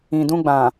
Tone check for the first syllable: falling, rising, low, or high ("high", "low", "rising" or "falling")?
low